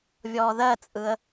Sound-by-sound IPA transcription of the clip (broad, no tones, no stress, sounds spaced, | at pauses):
vʲ ɔː ð ɜ t͡sʼ ɯ ə̯